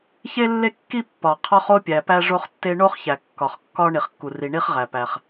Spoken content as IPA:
çe˥lːe˥kːi˥ pːɒ˩ qʰɒ˥χo˥pʲæ˩ pæ˥ʐo˥χtːe˥ ɳo˥χçæ˩ kːɒ˩χkːɒ˥ ɳi˩χkːu˩ri˩ɳi˥χ ʁæ˩pæ˩χ

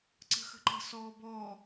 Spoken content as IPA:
ǀə̤xə̤ǃə̤ sɔːbɔ

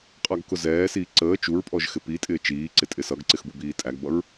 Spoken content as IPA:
qʼɑɡkʊzɛːsiː ǀəː t͡ʃuɹpʼɔʒ xɪpitʼɪː t͡ʃiːǀɪ tʼɪsʌɡǀɪx bubiːtʼæɡbʌɹ

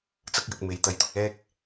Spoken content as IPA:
t͡sɐ˥k̚jɐ˧k̚ me˨˧jt̪ɐ˧jt̪ʊ˧k̚ ɛː˥k̚

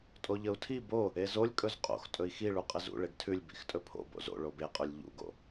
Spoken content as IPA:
tʼoʎəu̯tʰi bo | ezolʲ kʼɵzqʼo̰x tʼɵi̯xiɭu qʼɪzṵ ɭeɡtʰʉlʲ bḭxtʼɵpʰo̰ bo̰zo̰ ɭobeqʼʉlʲ ʎṵɡo̰

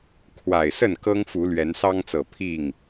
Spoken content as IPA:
kʰwa˨˩ɪ̯sə˥˨n kɤ˦ŋfu˨˦ lɥɛ˨˦nsɑ˦ŋt͡sɤ˨˩ pʰi˥˨ŋ

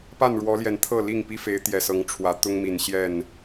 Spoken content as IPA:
pa˥˨nɻwɔ˨˦ljɛ˨˩n t̪ʰɤ˥˨li˥˨ŋ pi˦fe˨˦ɪ̯ t̪jɛ˨˩sɤ˨˦ŋ ʈ͡ʂʰwä˨˦ t̪ʊ˦ŋmi˨˩n ɕjɛ˥˨n

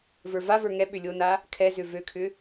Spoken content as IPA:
və˞vavə˞ ŋɛ ɓʏlʲona | kʰɛzʏ vøkʰʏ

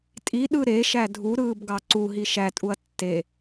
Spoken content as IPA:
tʼiɗɯ ɾeʃæ dʱuɾɯːbɡɑ ǀuɦi ʃætʼuɐ̯ tːe

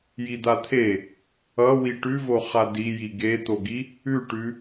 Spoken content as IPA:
jid̪at̪ʰe | ʌ wiʈʉvo χadiji ɡet̪oɡi | ʉʈʉ

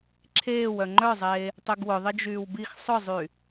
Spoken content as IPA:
ǁʰeːwœ ŋ͡ǃœzˤeː | tˤyɡwʊ ðˤɪd͡ʒyːwbix sˤʊzˤy

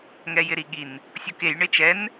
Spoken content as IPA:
ŋɛjɪɾiɠin | sʲukej ɳɪt͡ʃɛn

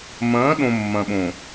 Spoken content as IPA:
mɐ̃ː˨˦ɗõ˨ mːɐ̃˨ɓõ˨

